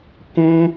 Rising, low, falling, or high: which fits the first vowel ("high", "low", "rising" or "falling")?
high